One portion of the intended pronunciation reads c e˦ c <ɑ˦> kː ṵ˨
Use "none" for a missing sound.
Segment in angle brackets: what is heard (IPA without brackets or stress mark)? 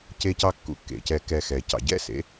ɑ˦